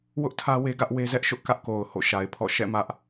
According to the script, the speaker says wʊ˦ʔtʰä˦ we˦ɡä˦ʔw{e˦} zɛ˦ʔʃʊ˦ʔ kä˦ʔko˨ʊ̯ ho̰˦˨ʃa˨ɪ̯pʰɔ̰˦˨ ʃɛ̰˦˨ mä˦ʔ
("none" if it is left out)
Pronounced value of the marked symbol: e˦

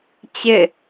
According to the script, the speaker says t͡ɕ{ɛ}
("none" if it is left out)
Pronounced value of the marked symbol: ɪ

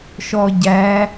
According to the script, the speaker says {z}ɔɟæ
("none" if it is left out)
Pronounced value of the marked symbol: ʃ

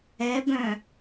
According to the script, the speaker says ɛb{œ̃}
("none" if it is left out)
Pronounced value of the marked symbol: œ̃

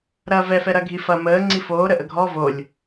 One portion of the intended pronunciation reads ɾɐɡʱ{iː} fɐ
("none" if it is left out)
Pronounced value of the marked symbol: i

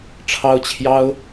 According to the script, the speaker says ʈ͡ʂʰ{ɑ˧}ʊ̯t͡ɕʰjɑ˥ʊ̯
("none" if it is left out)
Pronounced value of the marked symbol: ɑ˥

